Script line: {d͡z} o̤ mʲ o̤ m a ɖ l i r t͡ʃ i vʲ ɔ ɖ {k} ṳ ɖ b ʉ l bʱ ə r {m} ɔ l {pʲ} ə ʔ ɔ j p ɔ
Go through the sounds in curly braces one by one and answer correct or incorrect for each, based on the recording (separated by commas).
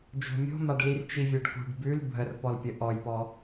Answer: incorrect, correct, incorrect, correct